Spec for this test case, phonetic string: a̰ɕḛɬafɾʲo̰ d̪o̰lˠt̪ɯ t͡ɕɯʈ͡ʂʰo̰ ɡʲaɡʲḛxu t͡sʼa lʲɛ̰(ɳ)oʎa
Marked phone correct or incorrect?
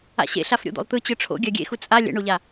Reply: correct